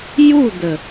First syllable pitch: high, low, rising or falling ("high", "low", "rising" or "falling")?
falling